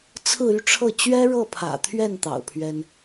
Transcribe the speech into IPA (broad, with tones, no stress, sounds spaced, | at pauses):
t͡sʰ ɹ̩˥˧ y˥˧ ʈ͡ʂʰ ɤ˥˩ t͡ɕ ɥ ɛ˥ ɻ ɤ˥˩ pʰ ä̰˨˩ t̪ʰ ɥ ɛ˥˩ n t̪ ɑ̰˨˩ ʊ̯ pʰ ɥ ɛ˥ n